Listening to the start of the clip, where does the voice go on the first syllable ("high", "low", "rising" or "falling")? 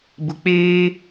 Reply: low